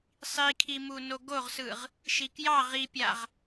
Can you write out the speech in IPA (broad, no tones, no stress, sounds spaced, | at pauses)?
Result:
sˤ i kʰ i m u n o ɡ o ʁ s ɯ ʁ | ʃ i k j ɑ ʁ i pʲ a ʁ